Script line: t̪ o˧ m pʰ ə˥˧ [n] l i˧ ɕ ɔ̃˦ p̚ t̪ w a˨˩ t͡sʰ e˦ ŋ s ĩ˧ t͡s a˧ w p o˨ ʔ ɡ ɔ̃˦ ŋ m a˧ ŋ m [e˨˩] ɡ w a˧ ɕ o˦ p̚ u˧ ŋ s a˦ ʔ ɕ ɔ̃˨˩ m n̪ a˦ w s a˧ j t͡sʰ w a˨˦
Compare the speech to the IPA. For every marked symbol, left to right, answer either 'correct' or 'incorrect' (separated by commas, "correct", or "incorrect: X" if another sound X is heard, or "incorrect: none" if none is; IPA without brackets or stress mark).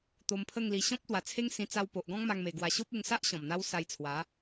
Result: incorrect: ŋ, correct